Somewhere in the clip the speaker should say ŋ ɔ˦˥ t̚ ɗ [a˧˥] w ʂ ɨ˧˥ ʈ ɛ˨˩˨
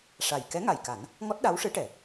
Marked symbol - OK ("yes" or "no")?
yes